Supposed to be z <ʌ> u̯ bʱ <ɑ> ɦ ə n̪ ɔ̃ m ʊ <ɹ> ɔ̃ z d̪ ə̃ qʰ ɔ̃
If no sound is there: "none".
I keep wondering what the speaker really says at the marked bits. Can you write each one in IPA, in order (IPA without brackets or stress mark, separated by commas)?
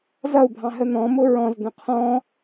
ʌ, ɑ̃, ɹ